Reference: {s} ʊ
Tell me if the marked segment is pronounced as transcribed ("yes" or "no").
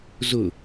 no